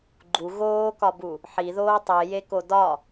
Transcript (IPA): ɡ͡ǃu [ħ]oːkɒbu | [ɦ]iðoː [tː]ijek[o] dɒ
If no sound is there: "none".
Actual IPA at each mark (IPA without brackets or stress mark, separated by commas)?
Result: ɣ, ħ, tˤ, o